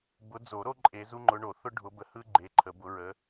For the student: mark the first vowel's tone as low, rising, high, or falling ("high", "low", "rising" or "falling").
rising